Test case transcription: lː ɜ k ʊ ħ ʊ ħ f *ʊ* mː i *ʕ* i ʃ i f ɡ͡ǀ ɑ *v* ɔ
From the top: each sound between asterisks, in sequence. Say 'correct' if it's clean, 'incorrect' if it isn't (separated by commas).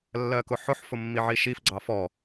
correct, correct, incorrect